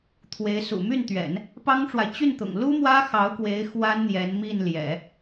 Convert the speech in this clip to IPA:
t̪ʰ w e˧˥ ɪ̯ s ṵ˨˩ m y˥˩ n t̪ ɥ ɛ̰˨˩˦ n | p ɑ˥ ŋ ʈ͡ʂ w a˨ ɪ̯ t͡ɕ y˥˩ n t̪ ʊ̰˨˩ ŋ l u˥ m w ä˥ x ɑ˧˥ ʊ̯ k w e˧˥ ɪ̯ x w a˥ n n̪ j ɛ˧˥ n m i˥˩ n l j ɛ̰˨˩˦

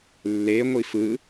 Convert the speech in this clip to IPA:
lː e ŋʷ i f ɯ

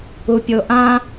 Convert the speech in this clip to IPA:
u pʲ o ʔ ã

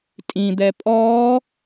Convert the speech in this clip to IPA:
tʼ ĩ d̪ ɛ pʼ ɔː

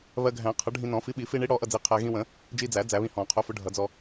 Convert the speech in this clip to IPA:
β ɜ˧ ɡʱ æ̃˨˩˦ qʰ ʌ˨˥ ɖʱ ĩ˧ n ɔ̃˨˩˦ f i˨˥ ɓ i˨˩˦ f i˧ ɳ i˨˥ ɽ ɔ˨˥ ʔ ʌ˧ d͡z i˨˥ qʰ æ˧ ɣ ĩ˧ w ə̃˨˩˦ | d͡ʒ i˧ d͡z æ˨˩˦ d͡z æ˨˩˦ β ĩ˧ h ɔ̃˨˩˦ qʰ ʊ˨˥ f ʊ˨˥ ɖʱ ʌ˨˩˦ d͡z ɔ˧

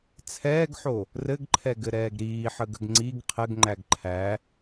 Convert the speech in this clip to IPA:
t͡sʰ ɛː ɡ ħ o | r ɘ ɡ ǃʰ ɛ ɡ ɘ ɾ ɛː ɡ ɾ iː ħ ə ɡ ə̤ ɡ ŋ͡ǀ i ɡ qʰ ɘ ɡ ŋ͡ǃ æ ɡ ǃʰ æ

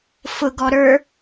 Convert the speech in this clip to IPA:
f ʊ ɡ ɔ ɾ ə˞

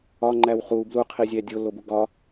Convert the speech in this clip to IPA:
ɒ ŋ͡ǃ æ w χ u b l u qʰ i zʲ æ dʲ o lː o b u ɡ ɒ

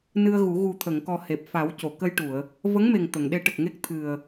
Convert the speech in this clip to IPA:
n ɨ˧ ə̯ ɣ u˨˩˦ ɣ u˨˩ t̪ʰ ə˨˩˨ ŋ k ɔ˨˩ h e˨˩ p̚ f a˨˩˦ w c o˨˩˨ k ə˧ j ʈ u˨˩˨ ə̯ | v ə˧˥ ŋ m e˨˩ ŋ t̪ ə˨˩˨ ŋ ɗ e˧˥ ʈ ə˨˩ k̚ ŋ e˦˥ k̚ t̪ʰ ɨ˨˩ ə̯

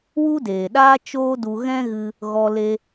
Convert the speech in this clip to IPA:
w u˦ d eː˨ ɗ aː˦ t͡ʃ oː˦ d u˧ ɣ ɛ̃˦ ɣ ɨ˧ | ɣ ɔ˧ l e˧

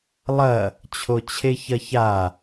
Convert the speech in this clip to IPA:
lˠ ɐ | t͡ɕʰ o t͡ɕʰ e ç ɐ ç a

